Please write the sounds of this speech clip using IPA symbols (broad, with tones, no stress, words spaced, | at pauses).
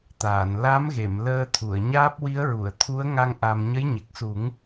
t̪aː˨˩˨n la˧˥mɣe˨˩˨m ləː˧ t̪ʰu˨˩˨ə̯ɲaː˦˥p̚ wi˧˥ə̯ɹu˨˩˨ə̯t̪ʰu˧˥ə̯ŋa˧ŋ ʔa˧m ɲə˧˥jɲe˨˩k̚su˨˩˦ŋ